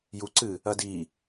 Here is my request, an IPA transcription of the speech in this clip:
juǀɨ | ɐdi

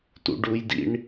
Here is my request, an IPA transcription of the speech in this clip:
tṵɖujdḭɳ

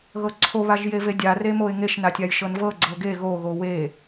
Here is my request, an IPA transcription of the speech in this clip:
ɣɤǀʰo βaʒjevedʲa remoɪ̯ŋeʃ natʲajʃɤnvɤ ɡ͡ǀɤɡe ɣo ɣowe

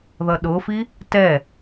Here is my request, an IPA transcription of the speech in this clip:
ðʌɗʊfi | tɛ

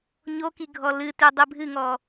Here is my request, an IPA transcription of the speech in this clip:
ɲoki ɡʱɔlɨtʉ dˤɨbʱɨŋɔ

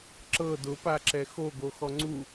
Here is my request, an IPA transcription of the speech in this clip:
ǁɤ dʊpaǁɛ xoɡo xɔŋ͡ǀu

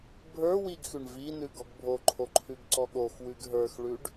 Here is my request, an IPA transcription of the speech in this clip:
bʱə˞ wiɡxʉɳ vi nʉɡɔɡbʱoǃʰo ǃʰʉɡǀɔɠoxwʉɡ ɦə˞xɭʉɖ

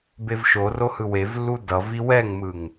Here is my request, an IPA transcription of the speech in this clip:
bevʃoro hɯwevlːu dʌvi wɛŋmɯŋ

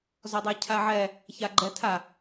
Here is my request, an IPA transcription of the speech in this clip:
zɔdˤacʰaʕɛ | çaɡ͡ǃɛtʰa

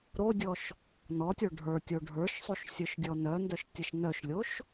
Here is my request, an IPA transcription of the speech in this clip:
ɾodʲɔʃ | nɔtʲo ɖʱə˞tʲo ɖʱə˞ʃsˤuʃ sʲœʃdʲɔnœndœʃ tʲəʃnœʃlʲoʃ

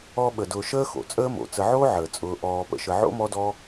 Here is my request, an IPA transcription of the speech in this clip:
ɔ˦ɓə˩dʊː˨ ʃəː˦xo̰˩t͡sʼəː˦mo̰˩ t͡sə˨ʕoː˥ ʕəː˩t͡sʼʊː˨ ʔɔː˨pə̰˨ʃə˨ ʕo̰˥mɔ˦dɔ˦

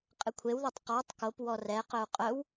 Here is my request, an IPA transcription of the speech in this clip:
qʼɪkʷʰewðotˤ qɔtˤ kopwɔ rɛqœu̯ qʼœw

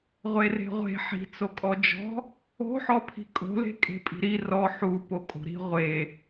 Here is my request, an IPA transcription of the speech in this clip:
ʁʷere̤ʁʷe̤ ħi̤ t͡sokʼɔd͡ʒɔ̤ | o̤ħɔpʰi̤ kʼo̤le̤ kʼe̤pʼi̤ɾi rɔ ħu pokʼo̤ɾi̤ ʁʷe

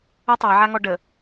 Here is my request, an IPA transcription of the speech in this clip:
ə tˤaʕaŋɔ ɖə

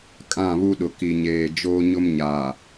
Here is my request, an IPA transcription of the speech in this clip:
kʼã˦˨βu˦ɗʊ˨ ki˨ɲeː˨ d͡ʒoː˦ɲʊ˦m ɲaː˨

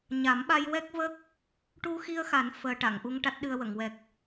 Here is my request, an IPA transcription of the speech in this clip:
ɲa˨˩˦mɓa˧jwɛ˦˥k̚və˦˥k̚ | ʈu˧xi˧ə̯xa˨˩˦n fəː˧ ʈa˨˩˨ŋʔu˧ŋ ʈa˦˥t̚ɗɨ˧ə̯wə˨˩˨ŋwɛ˨˩k̚

